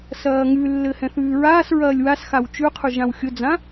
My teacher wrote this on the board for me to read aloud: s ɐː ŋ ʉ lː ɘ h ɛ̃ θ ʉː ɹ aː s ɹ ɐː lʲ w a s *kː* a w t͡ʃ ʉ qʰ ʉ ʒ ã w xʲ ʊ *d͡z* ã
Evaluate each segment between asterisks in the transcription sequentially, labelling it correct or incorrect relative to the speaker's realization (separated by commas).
incorrect, correct